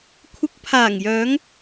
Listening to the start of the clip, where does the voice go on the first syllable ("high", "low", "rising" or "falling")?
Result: rising